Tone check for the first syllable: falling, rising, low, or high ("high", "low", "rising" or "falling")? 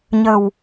low